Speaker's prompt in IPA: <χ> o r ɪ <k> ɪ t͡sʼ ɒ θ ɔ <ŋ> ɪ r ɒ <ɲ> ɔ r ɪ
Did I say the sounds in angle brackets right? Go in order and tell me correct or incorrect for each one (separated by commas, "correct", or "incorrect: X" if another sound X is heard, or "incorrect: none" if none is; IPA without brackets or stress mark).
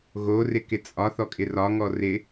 incorrect: ɣ, correct, incorrect: kʼ, incorrect: ŋ